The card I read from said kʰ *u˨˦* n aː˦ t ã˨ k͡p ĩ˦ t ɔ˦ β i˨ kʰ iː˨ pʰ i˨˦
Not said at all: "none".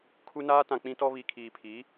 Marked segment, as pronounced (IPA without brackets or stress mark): u˦